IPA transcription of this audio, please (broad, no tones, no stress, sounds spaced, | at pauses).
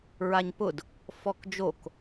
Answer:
ɹ a ɲ p ʊ d | f ɔ k d͡ʒ o k